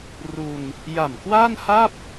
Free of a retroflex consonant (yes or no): yes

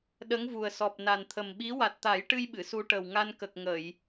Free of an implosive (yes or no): no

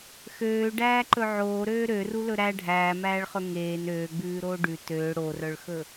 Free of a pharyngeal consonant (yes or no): no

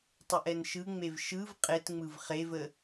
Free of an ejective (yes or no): no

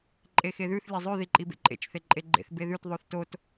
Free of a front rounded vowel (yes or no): yes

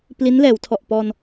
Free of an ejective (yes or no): yes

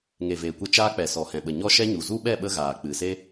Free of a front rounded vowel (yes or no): yes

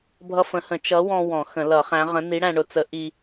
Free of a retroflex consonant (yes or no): no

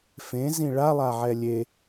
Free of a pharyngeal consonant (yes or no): no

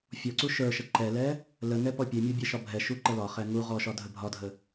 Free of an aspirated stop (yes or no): yes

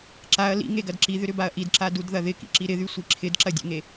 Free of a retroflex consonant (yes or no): yes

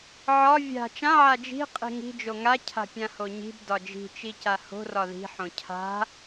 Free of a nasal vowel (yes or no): no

